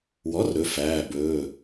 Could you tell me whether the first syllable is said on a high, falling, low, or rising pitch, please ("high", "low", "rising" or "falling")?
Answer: rising